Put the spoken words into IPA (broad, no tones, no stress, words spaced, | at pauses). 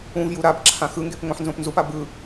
ũv juɾabǁʰã xɯŋɡep ŋõħnzõpnzupa bɯ